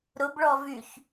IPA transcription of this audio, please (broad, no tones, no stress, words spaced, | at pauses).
ɾʊbɭɔ vyç